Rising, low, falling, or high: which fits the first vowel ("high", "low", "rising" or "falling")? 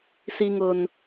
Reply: low